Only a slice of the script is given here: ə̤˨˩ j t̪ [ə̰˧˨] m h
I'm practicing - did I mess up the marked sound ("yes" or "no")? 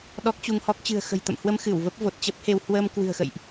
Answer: no